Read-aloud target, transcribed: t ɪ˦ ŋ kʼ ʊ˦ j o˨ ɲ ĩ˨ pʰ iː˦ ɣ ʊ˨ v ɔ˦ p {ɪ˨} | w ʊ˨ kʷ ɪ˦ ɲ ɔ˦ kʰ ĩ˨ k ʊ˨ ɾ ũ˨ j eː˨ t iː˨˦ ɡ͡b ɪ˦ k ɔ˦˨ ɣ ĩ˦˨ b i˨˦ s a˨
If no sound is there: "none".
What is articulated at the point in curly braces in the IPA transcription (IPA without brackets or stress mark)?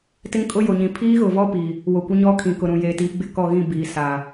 i˨